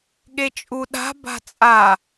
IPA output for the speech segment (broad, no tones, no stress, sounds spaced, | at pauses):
ɠ e t͡ʃʼ u ɗ a̤ b a̤ t͡sʼ a